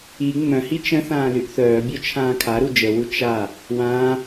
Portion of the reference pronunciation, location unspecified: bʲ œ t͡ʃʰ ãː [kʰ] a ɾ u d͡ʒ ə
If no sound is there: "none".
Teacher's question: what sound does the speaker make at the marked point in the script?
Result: kʰ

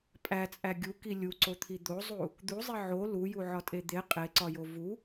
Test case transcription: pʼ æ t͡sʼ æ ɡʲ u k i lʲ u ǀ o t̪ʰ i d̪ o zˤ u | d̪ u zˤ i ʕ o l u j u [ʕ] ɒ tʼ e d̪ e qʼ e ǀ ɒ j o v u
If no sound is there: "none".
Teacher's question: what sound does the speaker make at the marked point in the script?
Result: ʕ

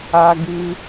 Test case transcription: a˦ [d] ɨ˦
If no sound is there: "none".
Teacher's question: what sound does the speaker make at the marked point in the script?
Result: ɡ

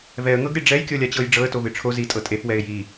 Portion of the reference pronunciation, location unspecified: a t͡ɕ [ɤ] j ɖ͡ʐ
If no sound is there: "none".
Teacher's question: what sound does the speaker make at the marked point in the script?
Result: ɤ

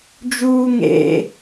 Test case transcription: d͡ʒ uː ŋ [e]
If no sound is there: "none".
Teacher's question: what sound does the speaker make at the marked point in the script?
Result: ḛ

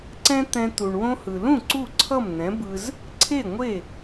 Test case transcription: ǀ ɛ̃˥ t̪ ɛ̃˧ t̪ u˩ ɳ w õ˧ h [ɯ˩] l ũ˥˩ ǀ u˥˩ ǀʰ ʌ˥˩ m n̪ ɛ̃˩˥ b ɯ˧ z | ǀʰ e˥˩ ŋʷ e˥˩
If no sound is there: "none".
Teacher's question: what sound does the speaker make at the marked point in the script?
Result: ɯ˩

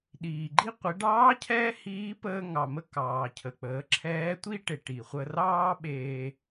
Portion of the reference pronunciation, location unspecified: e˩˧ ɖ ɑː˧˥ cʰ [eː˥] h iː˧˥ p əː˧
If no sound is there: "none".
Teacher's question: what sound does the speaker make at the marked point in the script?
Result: ɛː˥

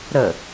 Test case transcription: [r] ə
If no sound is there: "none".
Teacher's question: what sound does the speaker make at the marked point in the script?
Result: ɾ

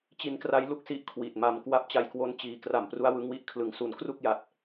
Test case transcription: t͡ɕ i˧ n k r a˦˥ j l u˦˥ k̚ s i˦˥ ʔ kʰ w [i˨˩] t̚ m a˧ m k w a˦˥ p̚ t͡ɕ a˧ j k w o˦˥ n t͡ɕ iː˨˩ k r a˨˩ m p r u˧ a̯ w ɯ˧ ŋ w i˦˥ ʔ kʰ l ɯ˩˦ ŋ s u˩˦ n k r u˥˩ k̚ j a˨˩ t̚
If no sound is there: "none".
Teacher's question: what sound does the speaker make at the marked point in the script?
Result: i˨˩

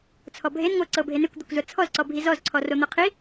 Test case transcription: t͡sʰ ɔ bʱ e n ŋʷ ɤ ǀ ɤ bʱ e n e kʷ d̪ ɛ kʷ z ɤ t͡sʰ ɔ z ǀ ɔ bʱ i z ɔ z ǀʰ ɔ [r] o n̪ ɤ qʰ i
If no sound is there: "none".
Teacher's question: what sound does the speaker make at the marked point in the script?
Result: r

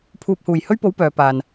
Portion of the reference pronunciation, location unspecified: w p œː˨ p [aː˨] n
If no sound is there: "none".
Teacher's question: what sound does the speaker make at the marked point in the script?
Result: aː˨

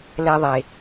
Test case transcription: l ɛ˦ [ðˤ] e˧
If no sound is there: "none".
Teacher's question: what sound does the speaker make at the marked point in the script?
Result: ðˤ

